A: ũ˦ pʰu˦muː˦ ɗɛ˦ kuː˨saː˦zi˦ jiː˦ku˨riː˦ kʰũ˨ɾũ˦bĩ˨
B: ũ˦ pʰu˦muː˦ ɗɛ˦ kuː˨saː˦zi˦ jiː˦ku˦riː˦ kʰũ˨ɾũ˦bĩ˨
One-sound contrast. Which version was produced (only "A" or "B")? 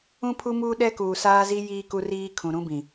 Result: B